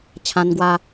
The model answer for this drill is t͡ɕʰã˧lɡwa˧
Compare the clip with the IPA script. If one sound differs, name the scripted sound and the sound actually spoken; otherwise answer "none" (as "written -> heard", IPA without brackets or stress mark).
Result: l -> n